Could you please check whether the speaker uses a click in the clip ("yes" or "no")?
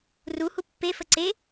yes